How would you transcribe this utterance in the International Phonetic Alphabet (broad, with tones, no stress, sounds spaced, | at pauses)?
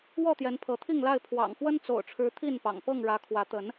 w ɔ˥˨ t̪ j ɛ˨˦ n pʰ ɤ˨˦ t̪ʰ i˥˨ ŋ l a˥˨ ɪ̯ pʰ w ɑ̰˨˩ ŋ f w ə˦ n t͡s o̰˨˩ ʊ̯ ʈ͡ʂʰ ɻ̩˨˦ t̪ʰ i˥˨ n p ɑ̰˨˩ ŋ p ɤ˥˨ ŋ ɻ ä˨˦ kʰ w ä˨˦ t̪ ə˨˦ n